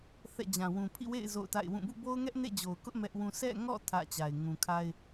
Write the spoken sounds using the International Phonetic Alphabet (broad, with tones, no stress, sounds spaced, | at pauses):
θ ɛ̰˦˨ d͡ʑ ã˨ w ũ˨ pʰ ḭ˦˨ w ḛ˦˨ ɪ̯ z o̰˦˨ ʊ̯ t a̰˦˨ ɪ̯ w ũ˦˨ b ṵ˦˨ b o˦ ʊ̯ ŋ ɛ˦ ʔ n ḛ˦˨ d͡ʑ o˨ ʊ̯ k ʊ˦ ʔ m ɛ˦ ʔ w ũ˦ s ɛ̰˦˨ ŋ ɔ̰˦˨ tʰ ä̰˦˨ t͡ɕ a˨ ɪ̯ ŋ ũ˨ kʰ a˦ ɪ̯